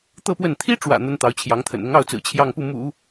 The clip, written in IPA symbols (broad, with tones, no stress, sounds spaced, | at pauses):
t̪ ɤ˥˧ p w ə˥˩ n t̪ʰ i˥ ʈ͡ʂ w ä̰˨˩ n̪ ə˥ n t̪ ɑ˧˥ ʊ̯ t͡ɕʰ j ɑ˧˥ ŋ t̪ʰ ə̰˨˩ n ʊ˧˥ ŋ ɑ˥˩ ʊ̯ t͡s ɹ̩˨˩ t͡ɕʰ j ɑ˥˧ ŋ p u˥˩ m ṵ˨˩˦